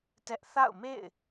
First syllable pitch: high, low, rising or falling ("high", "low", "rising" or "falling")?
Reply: high